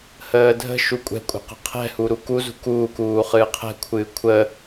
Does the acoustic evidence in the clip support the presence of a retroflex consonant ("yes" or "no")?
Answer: no